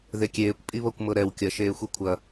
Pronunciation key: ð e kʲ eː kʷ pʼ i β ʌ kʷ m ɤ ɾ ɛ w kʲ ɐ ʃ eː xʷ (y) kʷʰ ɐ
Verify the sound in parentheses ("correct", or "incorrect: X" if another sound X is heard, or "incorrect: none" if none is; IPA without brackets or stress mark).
incorrect: i